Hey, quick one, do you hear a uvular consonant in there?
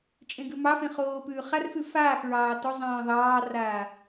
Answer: yes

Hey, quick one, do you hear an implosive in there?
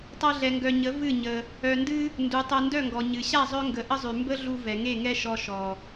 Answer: no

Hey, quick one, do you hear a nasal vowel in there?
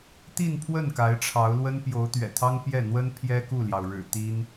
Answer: no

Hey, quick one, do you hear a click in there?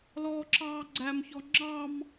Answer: yes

